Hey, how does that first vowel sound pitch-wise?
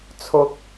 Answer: high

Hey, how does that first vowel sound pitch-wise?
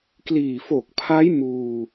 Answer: low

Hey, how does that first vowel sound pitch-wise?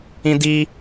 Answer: high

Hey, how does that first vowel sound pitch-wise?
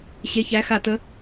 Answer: rising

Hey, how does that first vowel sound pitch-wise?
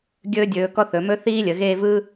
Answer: high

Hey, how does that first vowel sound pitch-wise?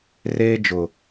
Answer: high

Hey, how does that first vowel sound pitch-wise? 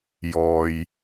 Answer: low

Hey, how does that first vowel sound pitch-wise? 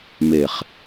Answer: low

